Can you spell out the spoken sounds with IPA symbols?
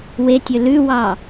w e tʲ ɵ l ʉ w ɑ

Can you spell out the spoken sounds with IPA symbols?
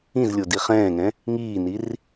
ĩ z lʲ o d i χ ɛ̃ː ŋ ɛ̃ | ŋ iː n i r

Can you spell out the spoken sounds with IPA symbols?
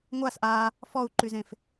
ŋʷ a s ʔ a | f ɔ u̯ ǃ y z ẽ f

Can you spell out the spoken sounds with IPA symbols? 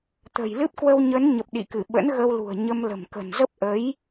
t̪ ə̤˨˩ j l ɨ˦˥ p̚ k w ə˧ w ɲ ə˨˦ n ɲ ə˨˩ p̚ ɗ ḭ˧˨ k ɨ˧˩ ɓ ə̰˧˥ n ɣ ə˧ w l ṳ˨˩ ə̯ ɲ ə˧ m l ə̤˨˩ m k ə̤˨˩ n z ə˦˥ p̚ ʔ ə˨˦ j

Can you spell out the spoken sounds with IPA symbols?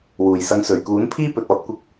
w uː˨˩ j s ɐ˨˧ ŋ s ɵ˨˩ ɥ k uː˨˥ n pʰ iː˥ p ɵ˨ t̚ ɔː˧ t̚ kʷ ɪ˧ k̚

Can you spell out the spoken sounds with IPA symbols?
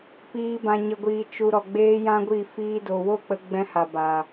p iː˨ b ã˨ ɲ ə˨ ɡʷ iː˨ t͡ʃ u˨ ɾ ɔ˨ ɡ͡b eː˦ j ã˦ ɡʷ i˦˨ f iː˦ d o˨ w o˦˨ k͡p ə˧ ɡ͡b ɛ̃˧ h a˨ b a˨

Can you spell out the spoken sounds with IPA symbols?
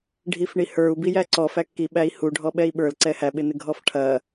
ɖʱ i f ɳ i h ə˞ u̯ b i j æ ǀ ɔ f æ kː i ɓ æ i̯ h u ɖʱ ɔ ɓ ɛ i̯ ɓ ə˞ l ǀ ɛ h æ ɓ ɪ n ɪ ɡʱ ɔ f ʈʰ ɐ

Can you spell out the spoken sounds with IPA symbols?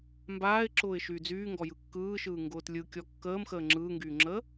m b aː ɪ̯ ǁ ʊː ɪ̯ ʃ yː d͡z yː ŋ ɡ ɔ j ɯ kː ɯː ʃ ɯː ŋ ɡ ʊː t lʲ ɯ kʲ ɔ kː əː m x əː ŋ͡ǁ ɯː ŋ ɡ yː ŋ͡ǁ əː

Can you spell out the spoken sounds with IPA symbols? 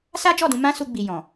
s a˦ d͡ʒ ɔ˦˨ d ũ˧ m ã˦ s u˧ ɡ͡b i˨ j ɔ̃˨

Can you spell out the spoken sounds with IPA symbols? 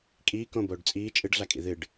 kʼ iː k õ b oː ɖ t͡sʼ iː t͡ʃʼ ɨ ɖ ɮ a kʼ ḭ ð ɨ ɖ

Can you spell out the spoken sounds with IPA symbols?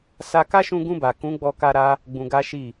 s a˧ k a˦ ʃ ũ˧ ɡ ũ˧ b a˨ k ũ˨˦ ɡ͡b ɔ˧ k a˧ ɾ a˧ | ɡ͡b ũ˧ ɡ a˦ ʃ i˦˨

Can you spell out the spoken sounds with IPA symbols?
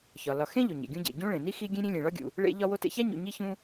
ç ɒ˩ l ɒ˨ x ẽ˥ ʎ o˩ ɲ ḛ˩ ɡʲ ũ˦ ɟ ḛ˩ ɟ ũ˥ ɭ ẽ˩ n i˥ x i˦ ɡʲ ẽ˦ ɾʲ ẽ˦ lʲ ẽ˨ ɭ ɒ˥ ɡʲ ṵ˨ | ɭ ḛ˦ ʎ ɒ˦ w o˦ t ḛ˦ ç æ˥ ɲ ṵ˨ ɲ i˦ ç ũ˦

